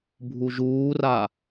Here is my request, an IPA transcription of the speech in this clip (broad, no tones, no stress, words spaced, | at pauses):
bʱuʒuːra